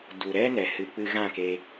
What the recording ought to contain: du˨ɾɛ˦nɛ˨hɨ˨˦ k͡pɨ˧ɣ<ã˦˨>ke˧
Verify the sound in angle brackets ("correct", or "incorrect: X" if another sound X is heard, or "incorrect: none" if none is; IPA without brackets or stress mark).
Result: correct